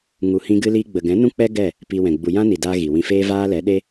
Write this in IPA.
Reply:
ŋu˨hĩ˧ ɡɨ˧liː˧ɡ͡bə˨ɡɛ̃˨˦ nũ˦k͡pɛ˦ ɡɛ˦˨ | piː˧wɛ̃˨ ɡ͡bu˨jã˦ni˨daː˧ ɣi˨ wĩ˧feː˦ vaː˦lɛ˨˦ɗe˦

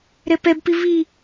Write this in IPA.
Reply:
ɾɛpɛbpi vi

